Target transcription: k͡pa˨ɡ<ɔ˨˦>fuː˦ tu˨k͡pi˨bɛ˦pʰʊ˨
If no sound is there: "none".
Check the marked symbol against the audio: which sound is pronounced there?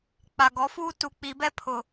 ɔ˨˦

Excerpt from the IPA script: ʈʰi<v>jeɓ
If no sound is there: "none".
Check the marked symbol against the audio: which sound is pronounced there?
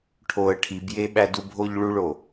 b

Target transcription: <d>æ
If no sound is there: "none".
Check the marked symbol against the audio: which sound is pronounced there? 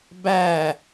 b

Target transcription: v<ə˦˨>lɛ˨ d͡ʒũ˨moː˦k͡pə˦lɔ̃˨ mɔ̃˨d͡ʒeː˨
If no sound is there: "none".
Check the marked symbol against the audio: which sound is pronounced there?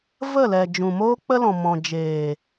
ə˦˨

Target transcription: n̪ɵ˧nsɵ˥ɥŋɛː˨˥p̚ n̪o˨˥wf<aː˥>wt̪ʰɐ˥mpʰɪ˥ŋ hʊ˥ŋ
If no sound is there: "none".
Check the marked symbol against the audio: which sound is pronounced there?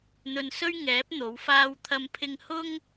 aː˥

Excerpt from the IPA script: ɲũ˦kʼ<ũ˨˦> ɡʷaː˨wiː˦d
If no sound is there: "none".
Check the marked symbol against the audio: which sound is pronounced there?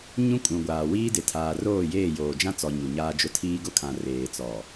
ũ˨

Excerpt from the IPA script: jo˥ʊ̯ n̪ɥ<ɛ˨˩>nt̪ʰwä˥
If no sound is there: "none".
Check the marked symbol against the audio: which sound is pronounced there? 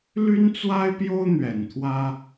ɛ˨˩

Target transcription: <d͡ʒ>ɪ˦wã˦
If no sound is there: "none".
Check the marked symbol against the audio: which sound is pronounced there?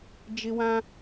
d͡ʒ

